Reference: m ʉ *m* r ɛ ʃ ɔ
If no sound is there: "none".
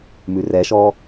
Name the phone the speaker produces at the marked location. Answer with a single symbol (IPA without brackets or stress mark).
none